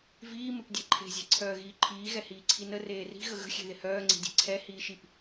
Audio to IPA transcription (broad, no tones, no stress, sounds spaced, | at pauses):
v iː m ɪ p dʲ e ǃʰ e̤ zʲ e̤ ǀʰ œː ɣ iː ǃʰ iː ɣ ɛ h iː ǀʰ i n ə r eː r i̤ ɣ ə ɣ ə̤ xʲ e̤ ð ɪ h œː ŋ͡ǀ i̤ dʲ e̤ ǀʰ ɛ h iː ʃ i p